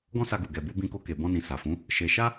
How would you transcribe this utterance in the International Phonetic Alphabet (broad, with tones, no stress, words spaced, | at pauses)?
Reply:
ɡɔ̃˦sa˧ɡu˨ ɡɛ˨bu˧ bĩ˧ko˧ke˨ bɔ̃˧nĩ˨ sa˨fũ˨˦ | ʃe˧ ʃa˦